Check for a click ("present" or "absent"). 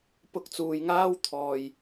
absent